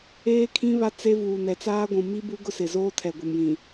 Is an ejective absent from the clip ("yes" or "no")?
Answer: yes